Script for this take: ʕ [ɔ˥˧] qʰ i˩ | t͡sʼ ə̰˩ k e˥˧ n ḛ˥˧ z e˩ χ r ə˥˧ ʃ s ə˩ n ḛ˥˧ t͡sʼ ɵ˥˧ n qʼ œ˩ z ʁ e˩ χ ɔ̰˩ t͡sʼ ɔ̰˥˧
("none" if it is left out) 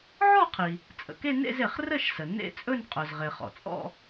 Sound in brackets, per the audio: ɔ˥˧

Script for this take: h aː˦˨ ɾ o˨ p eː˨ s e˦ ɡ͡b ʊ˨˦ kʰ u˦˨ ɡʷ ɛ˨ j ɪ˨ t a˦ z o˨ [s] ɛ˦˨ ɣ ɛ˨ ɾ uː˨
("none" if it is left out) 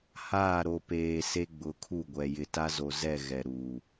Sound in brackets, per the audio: z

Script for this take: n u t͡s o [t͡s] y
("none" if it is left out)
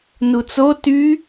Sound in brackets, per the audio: t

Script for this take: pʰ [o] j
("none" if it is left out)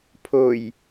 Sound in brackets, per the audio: o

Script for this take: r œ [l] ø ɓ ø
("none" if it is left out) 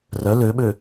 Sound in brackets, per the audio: l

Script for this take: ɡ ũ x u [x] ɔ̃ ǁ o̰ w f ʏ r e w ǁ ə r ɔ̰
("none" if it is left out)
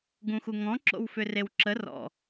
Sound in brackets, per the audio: ŋ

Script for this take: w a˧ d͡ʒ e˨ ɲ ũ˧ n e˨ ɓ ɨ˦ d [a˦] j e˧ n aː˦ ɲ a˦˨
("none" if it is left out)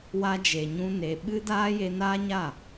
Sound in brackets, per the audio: aː˦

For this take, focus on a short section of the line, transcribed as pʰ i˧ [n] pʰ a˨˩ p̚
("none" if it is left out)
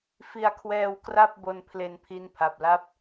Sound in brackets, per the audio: n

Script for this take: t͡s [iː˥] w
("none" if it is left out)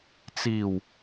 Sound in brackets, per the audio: iː˨˩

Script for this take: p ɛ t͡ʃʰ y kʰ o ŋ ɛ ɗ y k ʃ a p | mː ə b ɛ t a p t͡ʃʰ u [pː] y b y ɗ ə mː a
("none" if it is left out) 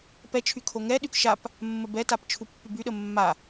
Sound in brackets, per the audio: pː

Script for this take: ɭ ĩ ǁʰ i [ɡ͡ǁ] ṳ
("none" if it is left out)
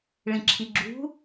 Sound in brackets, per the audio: ɡ͡ǁ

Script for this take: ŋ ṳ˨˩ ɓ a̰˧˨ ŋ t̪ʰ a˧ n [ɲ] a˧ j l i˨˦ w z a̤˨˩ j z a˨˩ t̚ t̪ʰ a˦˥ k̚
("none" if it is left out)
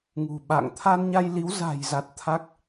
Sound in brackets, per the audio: ɲ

